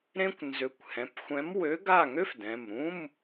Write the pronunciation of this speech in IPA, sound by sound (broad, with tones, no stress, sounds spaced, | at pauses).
ɾ ẽ˥ kʷ n z ø˨˥ kʷ h ɛ̃˩˧˩ p xʷ ɛ̃˨˥ m w ø˨˥ ɡ a˥˩ ŋ ø˥ f d ɛ̃˩˧˩ m ɾ ũ˧˥˧ m